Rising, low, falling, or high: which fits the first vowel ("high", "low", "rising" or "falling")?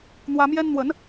high